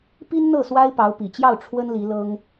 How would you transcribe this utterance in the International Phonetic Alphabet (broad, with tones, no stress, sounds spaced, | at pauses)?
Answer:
p i˥ n n̪ ɤ˥˩ s w a˥ ɪ̯ p ɑ˧˥ ʊ̯ p i˨˩ t͡ɕ j ɑ˥˩ ʊ̯ ʈ͡ʂʰ w ə˥ n l i˧˥ l ɤ˥ ŋ